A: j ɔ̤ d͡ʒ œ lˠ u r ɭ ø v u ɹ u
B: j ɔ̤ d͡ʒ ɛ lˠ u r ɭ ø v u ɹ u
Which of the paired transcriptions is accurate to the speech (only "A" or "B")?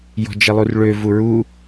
B